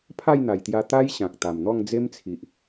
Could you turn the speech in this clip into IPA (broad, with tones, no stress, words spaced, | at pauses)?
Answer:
pʰa˥˧jn̪a˨˩jt̪ja˧ t̪a˦j ɕã˨k̚t̪a˨˩mn̪ɔ˥˧ŋ d͡ze˦mt͡sʰi˨ʔ